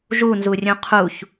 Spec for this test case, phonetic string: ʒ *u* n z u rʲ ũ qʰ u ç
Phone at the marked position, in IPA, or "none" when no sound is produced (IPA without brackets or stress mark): u